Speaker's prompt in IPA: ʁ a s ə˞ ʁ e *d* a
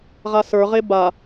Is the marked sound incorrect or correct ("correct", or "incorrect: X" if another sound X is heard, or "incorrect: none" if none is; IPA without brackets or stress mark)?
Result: incorrect: b